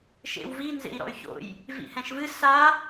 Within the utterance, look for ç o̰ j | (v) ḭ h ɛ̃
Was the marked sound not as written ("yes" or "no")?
no